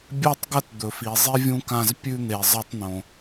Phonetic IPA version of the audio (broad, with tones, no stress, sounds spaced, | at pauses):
bʲ a˦ tˤ ɡ ɐ˦ t d̪ ɵ˨ f i˨ zˤ i˦ vʲ ũ˦ k ã˦˨ z pʲ ʉ˦ n̪ e˨ zˤ ɐ˦ tˤ n̪ õ˨